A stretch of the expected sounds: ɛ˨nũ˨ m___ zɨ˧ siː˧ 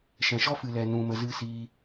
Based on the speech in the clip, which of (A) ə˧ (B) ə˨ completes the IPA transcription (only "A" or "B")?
A